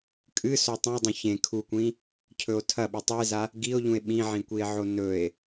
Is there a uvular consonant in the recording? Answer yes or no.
no